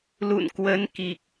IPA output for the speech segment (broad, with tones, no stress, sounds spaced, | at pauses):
l ṵ˧˨ n k w ə˨˦ n k i˨˩ k̚